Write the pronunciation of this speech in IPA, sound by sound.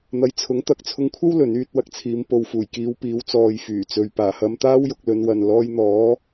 n̪ ɐ˧ j t͡sʰ ʊ˨˥ ŋ t̪ ɐ˨˥ k̚ t͡sʰ ʊ˧ ŋ kʷʰ ɐ˥ w l ɵ˨˥ n yː˧ t̚ w ɐ˧ k̚ t͡sʰ iː˨˧ m p o˨ w f uː˨˩ j k iː˨˧ w p iː˨˧ w t͡s ɔː˨ j f yː˨˩ t͡s ɵ˨ ɥ p aː˨˩ h ɐ˧ m t̪ aː˥ w j ʊ˧ k̚ l ɵ˨˧ n w ɐ˨ n l ɔː˧ j n̪ ɔː˨˥

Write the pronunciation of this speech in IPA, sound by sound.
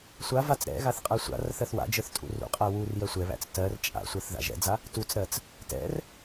sʷ a v a t͡s ɾ ɛ̰ ɣ a θ qʼ ɜ sʷ a̰ r θ ɜ θ w a̰ d͡ʒ ə˞ θ tʼ ṵ r ṵ qʼ æ w u r j ɜ sʷ ɛ β æ̰ t͡s t ɜ r t͡ʃʼ a̰ sʷ ɜ θ ð a̰ ʒ ɛ̰ d͡z a | t u t͡s ɾ ɜ t͡s | t ɛ̰ r

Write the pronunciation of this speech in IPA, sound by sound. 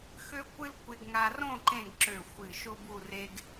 x ø˥ kʷ ɨ˥ l kʷ e˧ ɡ ŋ a˧ r õ˥˧ ǃ ẽ˥˧ ɡ ǁ ø˧˩ xʷ ɨ˧˩ ʃ o˥ b u˥˧ r e˧ ɡ

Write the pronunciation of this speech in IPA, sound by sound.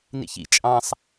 n ḭ ç ḭ t͡ʃʼ ɑ̃ sˤ

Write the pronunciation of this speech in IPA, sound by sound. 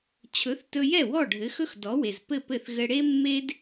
t͡ɕʰ ɵ˩˥ θ t ɵ˧ j ɛ˥˩ w ɔ˥˩ ɖʱ ɘ˩˥ x ɵ˥ x d ɔ˩˥ w e˩ z p ɘ˥˩ p ɘ˥˩ θ ɣ ɘ˧ ɽ e˥ mː e˥ d

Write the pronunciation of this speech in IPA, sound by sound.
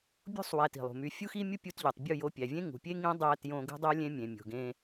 bʲ ṳ˦ sˤ w æ˧ t i̤˨ lˠ ṳ˨ m y˧ fʲ u˦ x i˦ mʲ u˦ pʲ u˧ t ʎ ø˨ tˤ bʲ u˦˨ j o˧ pʲ æ˨ vʲ ẽ˦ ŋ ṳ˨ pʲ e˦ ŋ ĩ˨˦ dˤ æ˧ t j õ˧ ɡ ṳ˦ dˤ o˦ lʲ ẽ˦ mʲ ẽ˨ mʲ o̤˨ ɡ ẽ˧

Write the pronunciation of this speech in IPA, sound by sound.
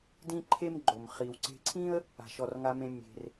d ĩ˥ ǃʰ e˥ m ɡ͡ǃ o˩ m χ i˩ w ǀ e̤˧ ǀʰ ĩ˥ ə̯ | a̤˩ ʃ ɔ˩ r ŋ a˧ m ẽ˧ mʲ e̤˩ r

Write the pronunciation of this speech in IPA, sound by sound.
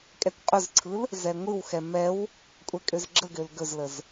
kʼ ɛ kʷ qʼ ɵ z ǀʰ ɯ l | z ɛ ŋʷ ɯ w x ɛ m ɛ w | kʷʼ ɛ kʼ ø z ɡ͡ǁ ə ɡ ø l ɡ ɵ z l ə z

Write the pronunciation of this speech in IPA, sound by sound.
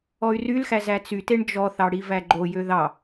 ɔ y̯ r y l x æ z æ t͡s y t e ɳ d͡ʒ ɔ θ ɑ ɽ i v æ ɡ͡ǃ o j ø ð ɑ

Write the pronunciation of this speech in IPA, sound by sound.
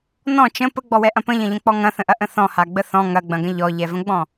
n ɔ̃ t͡ʃ ə̃ p ə ɡ͡b ɔ w ɛ ʔ ɐ̃ p ə̃ ʎ ɐ̃ ʎ ə̃ k͡p ɔ ŋ ɐ̃ θ ə̃ ʔ ɐ ʔ ə̃ θ ɔ̃ h a ɡ͡b ə θ ɔ̃ ŋ ɐ ɡ͡b ɐ̃ ɡ ə̃ ʎ ɔ ʎ ɛ v ə̃ ɡ͡b ɔ̃

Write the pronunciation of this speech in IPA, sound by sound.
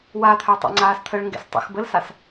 w a t̪ʰ œ tˤ ɑ̰ ŋ͡ǀ aː s t̪ʰ ə ɭ ŋ ɡ ɛ̰ s tˤ ə̰ x b ə l s a s

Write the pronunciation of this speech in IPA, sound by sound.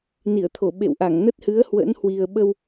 n i˧˩ ə̯ t̪ʰ o˧˩ ɓ ḛ˧˨ w ʔ a˧˩ ŋ n ə˦˥ t̚ h ɨ˨˦ ə̯ h w ə̰˧˥ n h w i˨˩ ə̯ ɓ ə˧ w

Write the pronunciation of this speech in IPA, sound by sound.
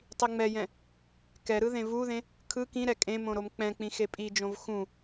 tˤ i ŋ͡m ɛ j ɛ̃ | k ɛ ɾ ɯ ð ẽ v u ð ẽ | kʰ ɯ k ĩ ɾ ɛ kʼ ẽ m õ ɾ o m k͡p ɛ̃ k͡p ĩ x e pʼ i d͡ʒ õ v x ũ

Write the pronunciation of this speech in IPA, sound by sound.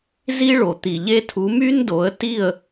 z i˦ ɭ o˨ t̪ i˨ ʎ e˦ tʰ u˨˦ m y˦ n d o˨˦ ə̯ t i˦˨ ə̯

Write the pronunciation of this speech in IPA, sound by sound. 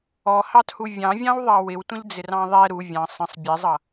ɔ h ɑ t h u vʲ ɑ̃ vʲ ɑ̃ w ðˤ ɑ w ɪ w tʷ ə̃ ʎ d͡z ɪ r ɑ̃ ðˤ ɛ ɾ u vʲ ɑ̃ sˤ ə̃ sˤ bʲ ɛ zˤ ʌ

